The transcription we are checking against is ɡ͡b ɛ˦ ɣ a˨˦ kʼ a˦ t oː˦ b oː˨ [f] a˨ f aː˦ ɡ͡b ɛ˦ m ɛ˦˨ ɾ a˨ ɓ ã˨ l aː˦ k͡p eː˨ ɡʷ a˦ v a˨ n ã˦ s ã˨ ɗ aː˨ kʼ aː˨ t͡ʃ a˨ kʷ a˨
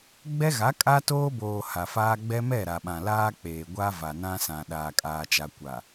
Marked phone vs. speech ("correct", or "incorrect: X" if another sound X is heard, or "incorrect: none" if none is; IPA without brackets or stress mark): incorrect: h